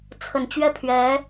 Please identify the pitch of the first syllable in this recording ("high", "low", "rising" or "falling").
low